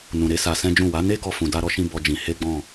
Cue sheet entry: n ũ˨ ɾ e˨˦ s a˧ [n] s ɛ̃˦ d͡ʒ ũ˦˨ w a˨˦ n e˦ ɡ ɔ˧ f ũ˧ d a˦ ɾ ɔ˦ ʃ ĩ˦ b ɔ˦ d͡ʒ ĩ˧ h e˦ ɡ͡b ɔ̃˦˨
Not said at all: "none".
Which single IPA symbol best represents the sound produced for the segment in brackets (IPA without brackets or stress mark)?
none